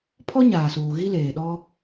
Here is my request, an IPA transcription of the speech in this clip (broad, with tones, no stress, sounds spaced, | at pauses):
pʰ ɔ˦ ɲ aː˨ s uː˨ ɣ i˦ l eː˨ ɗ ɔ˦